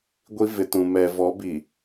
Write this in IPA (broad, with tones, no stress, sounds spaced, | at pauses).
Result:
ɡʷ i˦ v ɪ˨ t ũ˨ m ɛ˨ v ɔ˨˦ b i˨